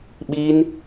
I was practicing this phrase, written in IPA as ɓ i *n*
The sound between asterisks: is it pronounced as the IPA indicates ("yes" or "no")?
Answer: yes